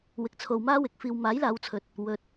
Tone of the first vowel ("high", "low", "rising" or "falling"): low